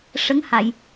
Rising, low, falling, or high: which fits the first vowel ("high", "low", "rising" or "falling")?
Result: rising